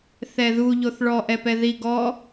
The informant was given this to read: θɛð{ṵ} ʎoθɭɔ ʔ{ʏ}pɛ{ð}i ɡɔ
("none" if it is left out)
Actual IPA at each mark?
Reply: u, ɛ, ð

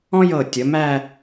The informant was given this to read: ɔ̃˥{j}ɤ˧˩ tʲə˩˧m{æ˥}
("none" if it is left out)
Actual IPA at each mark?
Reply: j, æ˥˧

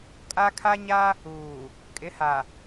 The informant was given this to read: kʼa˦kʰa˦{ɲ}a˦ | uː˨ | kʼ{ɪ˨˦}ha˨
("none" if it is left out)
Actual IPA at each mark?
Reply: ɲ, ɪ˨˦

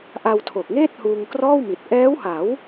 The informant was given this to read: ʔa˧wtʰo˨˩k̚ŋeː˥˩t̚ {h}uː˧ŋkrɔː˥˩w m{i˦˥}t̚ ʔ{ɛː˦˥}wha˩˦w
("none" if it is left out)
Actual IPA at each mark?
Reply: h, i˨˩, ɛː˦˥

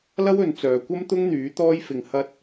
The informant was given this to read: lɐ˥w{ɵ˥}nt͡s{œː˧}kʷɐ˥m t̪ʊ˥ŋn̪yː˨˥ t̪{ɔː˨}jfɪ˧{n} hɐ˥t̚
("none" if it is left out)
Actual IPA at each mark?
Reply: ɵ˨˧, œː˨, ɔː˥, ŋ

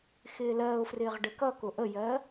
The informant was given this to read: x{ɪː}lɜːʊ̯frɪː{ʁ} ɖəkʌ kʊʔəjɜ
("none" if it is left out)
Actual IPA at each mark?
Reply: ɪː, ʁ

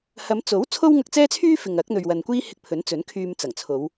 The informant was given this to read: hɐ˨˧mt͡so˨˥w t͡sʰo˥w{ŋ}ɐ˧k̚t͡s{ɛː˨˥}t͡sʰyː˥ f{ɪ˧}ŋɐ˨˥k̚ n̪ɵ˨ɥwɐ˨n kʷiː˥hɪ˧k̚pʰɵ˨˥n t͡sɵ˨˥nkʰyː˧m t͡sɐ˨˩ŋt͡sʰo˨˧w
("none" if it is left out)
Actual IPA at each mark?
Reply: ŋ, ɛː˥, ɪ˨

